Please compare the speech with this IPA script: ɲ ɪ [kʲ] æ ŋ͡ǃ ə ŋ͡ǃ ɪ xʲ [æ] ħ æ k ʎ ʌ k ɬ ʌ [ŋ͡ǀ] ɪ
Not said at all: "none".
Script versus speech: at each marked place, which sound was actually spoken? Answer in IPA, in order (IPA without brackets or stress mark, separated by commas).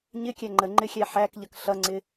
kʲ, æ, ŋ͡ǀ